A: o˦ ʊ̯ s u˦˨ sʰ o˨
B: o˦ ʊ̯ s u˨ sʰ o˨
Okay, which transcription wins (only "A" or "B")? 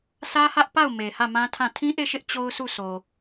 A